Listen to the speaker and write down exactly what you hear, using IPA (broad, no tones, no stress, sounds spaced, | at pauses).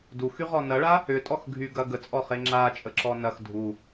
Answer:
d u x y ʁ ɔ n ɐ ɭ a | ʏ tʼ ɔ x ɡʱ y ɡ ɐ ɡ ə t͡sʼ ɔ χ e ŋ͡ǁ a t͡ʃʼ ə ǁ ɔ n ɐ x dʱ u